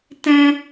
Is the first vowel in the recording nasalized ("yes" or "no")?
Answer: yes